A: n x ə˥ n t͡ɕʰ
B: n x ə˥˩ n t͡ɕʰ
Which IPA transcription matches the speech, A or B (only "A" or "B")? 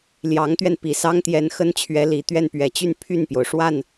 A